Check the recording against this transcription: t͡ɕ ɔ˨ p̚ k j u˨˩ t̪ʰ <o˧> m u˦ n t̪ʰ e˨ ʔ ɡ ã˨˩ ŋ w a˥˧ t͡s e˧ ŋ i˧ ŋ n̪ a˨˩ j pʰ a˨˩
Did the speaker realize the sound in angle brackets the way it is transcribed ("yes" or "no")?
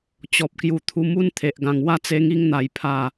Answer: no